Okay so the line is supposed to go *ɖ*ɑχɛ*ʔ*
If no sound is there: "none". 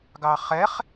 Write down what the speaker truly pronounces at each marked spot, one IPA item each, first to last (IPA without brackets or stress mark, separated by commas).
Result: ɡ, χ